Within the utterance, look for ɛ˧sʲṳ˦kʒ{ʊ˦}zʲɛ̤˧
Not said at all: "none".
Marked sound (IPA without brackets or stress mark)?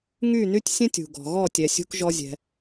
ɔ˦